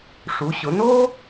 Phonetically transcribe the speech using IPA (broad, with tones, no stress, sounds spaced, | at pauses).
ʂ u˩˧ ɕ ʊ˩˧ n oː˥